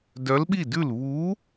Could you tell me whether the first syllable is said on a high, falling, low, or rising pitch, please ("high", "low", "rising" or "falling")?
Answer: rising